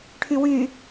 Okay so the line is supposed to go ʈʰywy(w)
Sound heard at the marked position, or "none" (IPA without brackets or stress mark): none